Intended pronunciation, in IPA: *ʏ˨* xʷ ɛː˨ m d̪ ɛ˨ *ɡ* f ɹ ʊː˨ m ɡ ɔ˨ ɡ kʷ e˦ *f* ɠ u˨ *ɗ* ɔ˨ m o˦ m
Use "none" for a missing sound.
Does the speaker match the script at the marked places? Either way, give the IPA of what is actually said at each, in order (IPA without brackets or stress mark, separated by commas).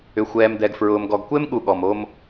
ʏ˨, ɡ, m, ɠ